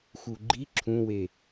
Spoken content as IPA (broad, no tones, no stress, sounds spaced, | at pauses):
x u ɡ͡ǃ i ǁʰ ũ w e